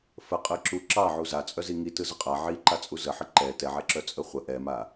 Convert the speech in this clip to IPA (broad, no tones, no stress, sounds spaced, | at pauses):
f ə qʼ ɯ ǁ u ǁ ɑ ʕ u z a t͡sʼ œ z i ŋ i t ɯ z ə qʼ a ʕ i ǃ a t͡sʼ u z ə ħ ə ǃ ɛ t ɛ ʕ ɛ ǁ œ t͡sʼ ə χʷ ə ʔ ɛ m a